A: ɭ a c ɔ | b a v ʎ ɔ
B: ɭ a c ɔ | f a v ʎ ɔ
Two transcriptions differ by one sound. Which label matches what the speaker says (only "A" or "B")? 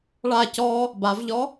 A